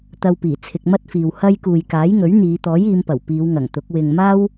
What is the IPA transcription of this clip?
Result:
t̪ ɐ˧ w p iː˨˩ t͡sʰ ɪ˧ k̚ m ɐ˥ t̚ f iː˨ w h ɐ˧ j k uː˨ j k aː˨˥ j ŋ ɵ˨˥ ɥ n̪ iː˨˧ t̪ ɔː˨˥ j iː˨˧ m p ɐ˨˩ w p iː˨˧ w ŋ ɐ˨˩ ŋ t̪ ʊ˨˥ k̚ w ɪ˨ ŋ m aː˥ w

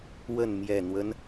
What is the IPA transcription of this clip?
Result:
w ə˥˨ n m j ɛ˨˩ n̪ w ə˦ n

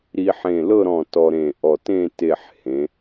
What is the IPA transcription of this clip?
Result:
ɾ i˧ ħ ẽ˧˩ l ɤ˥˧ ɾ ɔ̃˧˩ t ɔ˧ ɾ ẽ˧˩ ʔ ɔ˧˩ t ẽ˥˧ t e˧˩ ħ h ẽ˩˧

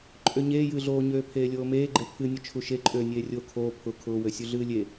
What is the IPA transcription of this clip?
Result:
ǃʼ ø ɲ eː j ɨː ɮ oː ɲ øː pʰ eː lʲ oː m eː ɡ͡ǃ e pʰ ɨ nʲ ʊ t͡ʃʰ u ʃ e ǃʼ øː nʲ eː rʲ oː kʰ oː pʰ ʊ kʰ ʊː w ø sʲ u ɮ ɨː lʲ e

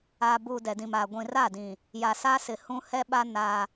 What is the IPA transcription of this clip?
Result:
aː˨ b uː˨ d ɛ˨ d ĩ˨ m aː˨ ɡʷ ĩ˨ r a˦˨ d ĩ˨ | j a˨ s aː˦ s ɪ˨ h ũ˦ h ɛ˦ ɓ a˦ n a˦

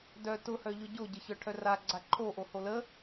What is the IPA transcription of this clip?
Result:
d œ t ʊ h œ ʎ ʊ ɟ o ɟ ə ç œ ʈʰ œ r a ɡ͡ǀ a ǃʰ o ʔ o h o l ə

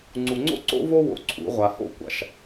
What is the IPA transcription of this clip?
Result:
ŋ͡ǀ u˨ ŋ͡ǀ o̰˦ ǀ o̰˦ v o˦ w o̰˨ ǀʰ ṵ˨˦ ʁʷ a˨ h o̰˦ kʷ a̰˨ ʃ

